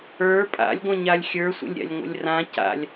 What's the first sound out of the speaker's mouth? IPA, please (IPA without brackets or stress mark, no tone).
ə˞